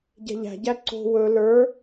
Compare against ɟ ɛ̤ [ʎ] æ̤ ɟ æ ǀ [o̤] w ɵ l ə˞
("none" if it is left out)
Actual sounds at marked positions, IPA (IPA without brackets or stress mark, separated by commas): ʎ, o̤